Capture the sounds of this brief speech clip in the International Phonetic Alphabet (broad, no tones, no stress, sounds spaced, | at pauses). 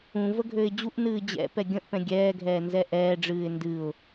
ũ v ə ɡʱ ø ɪ̯ d͡ʑ u ʔ n ɨː d͡ʑ ɛ̰ p ɛ ɡʲ ə̃ ʔ p ɛ̃ ɡʲ ɛː ɡʱ ɛː n z ɛ ʔ ɛː ɖ͡ʐ ɨː ɪ̯ n d ɨ ʊ̯